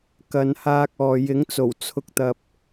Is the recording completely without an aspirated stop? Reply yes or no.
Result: no